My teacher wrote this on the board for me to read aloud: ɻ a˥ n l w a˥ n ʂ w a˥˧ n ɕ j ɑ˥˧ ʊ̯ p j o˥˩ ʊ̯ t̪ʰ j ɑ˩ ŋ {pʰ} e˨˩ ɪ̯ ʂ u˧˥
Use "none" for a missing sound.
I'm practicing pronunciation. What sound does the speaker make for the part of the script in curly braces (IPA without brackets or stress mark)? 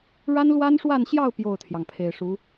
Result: pʰ